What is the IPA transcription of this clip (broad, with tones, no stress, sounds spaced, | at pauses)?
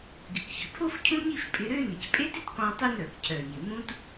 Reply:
ɡ ɪ˩ k ç ʏ˩ pʰ o˥ f cʰ ũ˥ ɲ i˥ f pʼ ɪ˧ ɾ ø˥ n ɪ˩ c pʼ e˥ t ɪ˥ t k ɔ̃˧ tˤ ʏ˥ n ɾ œ˩ k cʰ œ˩ ɲ ɪ˩ m ũ˥ t